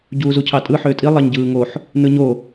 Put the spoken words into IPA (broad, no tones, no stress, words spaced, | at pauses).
ɟuːzucʰɑtʼɯ ħøːtʼi lˠɑɲɟɯːŋoħ | nɯɲo